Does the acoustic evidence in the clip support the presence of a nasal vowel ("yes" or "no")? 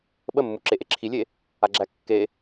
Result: no